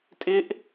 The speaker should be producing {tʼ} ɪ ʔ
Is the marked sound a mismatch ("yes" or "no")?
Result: no